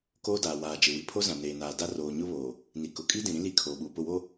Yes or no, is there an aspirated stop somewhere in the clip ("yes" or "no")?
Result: yes